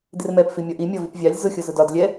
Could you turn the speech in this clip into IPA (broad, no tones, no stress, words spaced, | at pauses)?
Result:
dɪrmɛp fimʲɒʔi mʲɒvipvʲɑlʲ zʊ xʲʊzʊdɒd lʲɛ